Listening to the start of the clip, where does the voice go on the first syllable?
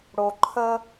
low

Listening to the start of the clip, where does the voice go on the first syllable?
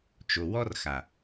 low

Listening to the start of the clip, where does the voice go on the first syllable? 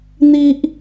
high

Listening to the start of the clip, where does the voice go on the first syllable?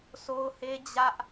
high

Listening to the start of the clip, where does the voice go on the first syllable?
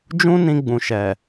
high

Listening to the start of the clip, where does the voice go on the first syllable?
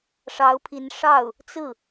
rising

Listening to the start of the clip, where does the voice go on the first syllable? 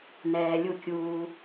low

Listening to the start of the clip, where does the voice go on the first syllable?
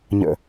low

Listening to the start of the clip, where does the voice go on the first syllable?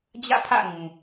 falling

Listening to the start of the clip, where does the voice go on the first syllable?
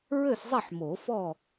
falling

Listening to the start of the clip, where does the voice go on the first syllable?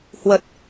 low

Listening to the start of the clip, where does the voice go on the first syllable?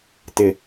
low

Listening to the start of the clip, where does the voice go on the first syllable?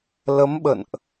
rising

